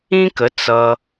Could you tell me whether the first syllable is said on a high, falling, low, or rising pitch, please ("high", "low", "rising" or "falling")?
high